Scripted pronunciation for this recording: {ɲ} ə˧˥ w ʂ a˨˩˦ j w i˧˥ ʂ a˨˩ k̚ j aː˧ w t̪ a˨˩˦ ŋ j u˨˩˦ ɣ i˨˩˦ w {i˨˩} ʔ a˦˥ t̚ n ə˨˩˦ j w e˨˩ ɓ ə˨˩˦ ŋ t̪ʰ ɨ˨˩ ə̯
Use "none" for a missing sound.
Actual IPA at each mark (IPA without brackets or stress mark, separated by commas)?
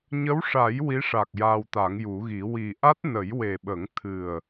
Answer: ɲ, i˨˩